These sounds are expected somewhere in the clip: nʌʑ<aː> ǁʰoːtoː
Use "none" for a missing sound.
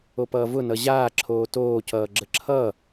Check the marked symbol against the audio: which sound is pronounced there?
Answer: aː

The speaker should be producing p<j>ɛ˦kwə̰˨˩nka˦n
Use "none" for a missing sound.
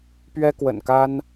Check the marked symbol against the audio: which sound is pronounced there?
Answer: ɥ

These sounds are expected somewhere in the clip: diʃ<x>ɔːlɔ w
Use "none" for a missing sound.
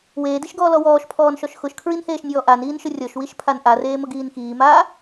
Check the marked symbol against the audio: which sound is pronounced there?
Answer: ɡ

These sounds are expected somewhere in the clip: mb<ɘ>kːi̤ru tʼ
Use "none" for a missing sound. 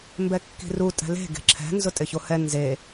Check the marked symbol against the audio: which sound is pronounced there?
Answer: ɛ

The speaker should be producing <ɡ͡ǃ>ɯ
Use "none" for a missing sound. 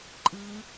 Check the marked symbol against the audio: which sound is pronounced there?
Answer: ǃʼ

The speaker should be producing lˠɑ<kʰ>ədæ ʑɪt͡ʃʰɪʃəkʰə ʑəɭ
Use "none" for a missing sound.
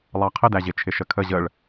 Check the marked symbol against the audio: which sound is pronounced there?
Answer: qʰ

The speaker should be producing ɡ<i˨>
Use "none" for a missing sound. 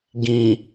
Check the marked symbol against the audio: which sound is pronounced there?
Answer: ĩ˨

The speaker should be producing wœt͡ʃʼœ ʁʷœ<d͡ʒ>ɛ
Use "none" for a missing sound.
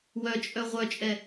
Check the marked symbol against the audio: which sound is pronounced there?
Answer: t͡ʃʼ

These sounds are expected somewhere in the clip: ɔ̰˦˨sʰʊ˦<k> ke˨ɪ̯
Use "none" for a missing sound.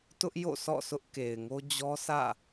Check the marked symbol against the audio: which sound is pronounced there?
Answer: ʔ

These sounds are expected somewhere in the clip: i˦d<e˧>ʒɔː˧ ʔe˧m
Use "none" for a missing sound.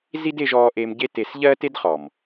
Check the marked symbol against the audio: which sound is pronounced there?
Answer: e˧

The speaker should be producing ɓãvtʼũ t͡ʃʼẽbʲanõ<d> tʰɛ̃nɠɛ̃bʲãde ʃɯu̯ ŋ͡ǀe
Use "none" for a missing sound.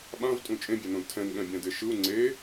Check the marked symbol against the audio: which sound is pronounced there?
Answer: d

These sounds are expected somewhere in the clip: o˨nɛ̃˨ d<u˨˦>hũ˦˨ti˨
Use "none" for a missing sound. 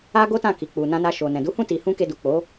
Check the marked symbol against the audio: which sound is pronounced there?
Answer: u˨˦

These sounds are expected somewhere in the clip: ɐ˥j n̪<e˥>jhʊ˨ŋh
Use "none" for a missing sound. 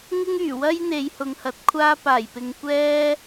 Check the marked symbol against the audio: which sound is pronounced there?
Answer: e˨˧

